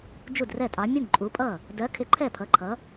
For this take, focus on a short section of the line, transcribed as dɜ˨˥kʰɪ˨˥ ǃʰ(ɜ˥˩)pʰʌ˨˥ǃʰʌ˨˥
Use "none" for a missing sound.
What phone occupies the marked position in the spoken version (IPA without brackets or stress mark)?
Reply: ɛ˥˩